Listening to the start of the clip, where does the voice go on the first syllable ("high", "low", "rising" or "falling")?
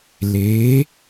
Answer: rising